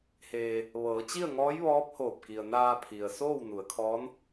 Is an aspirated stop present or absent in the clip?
present